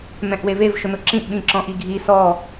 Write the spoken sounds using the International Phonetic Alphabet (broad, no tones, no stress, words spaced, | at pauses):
mɛ̃ʔwevev ʃʊnʊǁĩʔ ɓĩǁɔ̃ʔiɡʱi sɔ